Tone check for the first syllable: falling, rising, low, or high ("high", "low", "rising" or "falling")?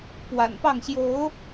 low